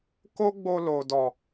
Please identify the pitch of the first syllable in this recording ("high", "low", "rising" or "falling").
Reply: high